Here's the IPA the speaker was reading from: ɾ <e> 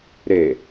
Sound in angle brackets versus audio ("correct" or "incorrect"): correct